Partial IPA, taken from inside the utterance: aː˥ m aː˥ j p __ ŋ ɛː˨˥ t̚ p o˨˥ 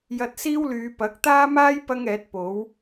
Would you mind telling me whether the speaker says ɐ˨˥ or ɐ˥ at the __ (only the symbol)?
ɐ˥